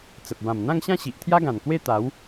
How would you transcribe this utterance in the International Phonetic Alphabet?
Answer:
t͡sə˨p̚ bã˨˩mn̪ã˥˧ŋɕã˥˧ ɕi˨ʔt̪ʰja˦ɡã˨˩nkwe˥˧ t̪a˨˦w

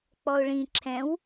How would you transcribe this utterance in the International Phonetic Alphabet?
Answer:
k͡pɔʊ̯ɭĩ ǁʰɛ̃w

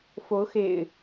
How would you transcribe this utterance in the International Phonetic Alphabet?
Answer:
fo˨˦ʊ̯xḛ˨˩ɪ̯

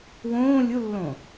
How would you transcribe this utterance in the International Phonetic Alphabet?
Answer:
wõː lʲulːõ

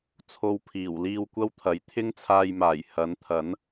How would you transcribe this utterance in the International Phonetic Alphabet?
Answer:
t͡sʰo˧wpʰiː˨˩w liː˧wkʷɐ˥wt̪ʰɐ˨˥j t̪ʰɪ˥ŋt͡sʰaː˧jmaː˨˩j hɐ˨˥nt̪ʰɐ˨˥n

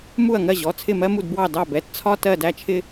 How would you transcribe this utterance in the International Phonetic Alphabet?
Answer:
mu˥˩ɐ̯ŋɜ˥˩ʑɔ˩˧˩ t͡sʰɪ˥˩mɜ˥mu˥˩dbwɑ˥˩ dɑ˥˩bɛ˩˧˩t t͡sʰɒ˥ tɜ˥˩dæ˥˩t͡ʃʰɪ˥

